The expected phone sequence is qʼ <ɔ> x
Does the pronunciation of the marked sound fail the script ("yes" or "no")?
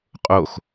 yes